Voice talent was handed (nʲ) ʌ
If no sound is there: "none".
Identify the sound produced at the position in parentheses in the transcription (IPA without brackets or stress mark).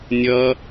nʲ